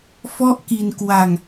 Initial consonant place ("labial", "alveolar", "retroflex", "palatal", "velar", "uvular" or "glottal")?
labial